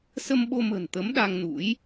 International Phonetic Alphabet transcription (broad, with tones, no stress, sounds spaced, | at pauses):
s ə˧ m ɓ o˧ m ə̤˨˩ n t̪ ə˨˦ m ɗ a˧ ŋ n ṵ˧˥ j